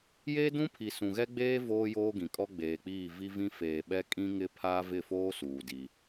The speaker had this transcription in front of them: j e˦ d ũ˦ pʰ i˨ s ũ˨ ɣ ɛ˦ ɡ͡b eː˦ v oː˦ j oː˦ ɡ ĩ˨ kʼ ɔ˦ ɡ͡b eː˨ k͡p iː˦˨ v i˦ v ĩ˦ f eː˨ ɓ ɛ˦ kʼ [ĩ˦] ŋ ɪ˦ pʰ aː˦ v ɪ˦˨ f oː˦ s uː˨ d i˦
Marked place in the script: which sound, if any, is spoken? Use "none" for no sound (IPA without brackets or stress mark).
ĩ˦